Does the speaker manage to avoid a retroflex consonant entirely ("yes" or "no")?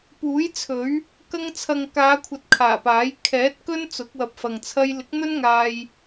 yes